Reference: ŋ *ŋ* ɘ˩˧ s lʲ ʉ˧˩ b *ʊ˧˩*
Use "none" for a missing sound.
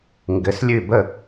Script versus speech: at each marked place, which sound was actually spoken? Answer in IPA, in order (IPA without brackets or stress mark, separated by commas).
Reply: ɡ, ə˧˩